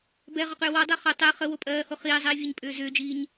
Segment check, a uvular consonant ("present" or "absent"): present